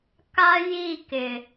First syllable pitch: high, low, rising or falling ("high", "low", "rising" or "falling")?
high